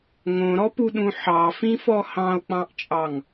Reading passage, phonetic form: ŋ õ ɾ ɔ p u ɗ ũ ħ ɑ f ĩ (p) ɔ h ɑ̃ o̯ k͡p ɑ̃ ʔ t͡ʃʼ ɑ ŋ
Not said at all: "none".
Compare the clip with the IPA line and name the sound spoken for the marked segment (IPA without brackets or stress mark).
f